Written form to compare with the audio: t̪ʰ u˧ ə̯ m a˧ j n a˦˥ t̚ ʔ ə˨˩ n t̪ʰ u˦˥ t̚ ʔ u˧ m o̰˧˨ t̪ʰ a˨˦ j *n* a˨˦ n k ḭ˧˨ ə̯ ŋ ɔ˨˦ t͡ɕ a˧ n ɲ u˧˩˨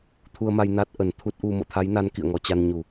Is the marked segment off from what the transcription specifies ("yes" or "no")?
no